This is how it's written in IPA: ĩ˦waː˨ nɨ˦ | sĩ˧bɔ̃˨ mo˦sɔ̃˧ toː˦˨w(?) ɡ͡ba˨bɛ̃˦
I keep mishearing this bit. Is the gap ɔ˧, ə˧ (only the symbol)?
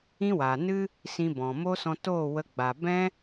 ə˧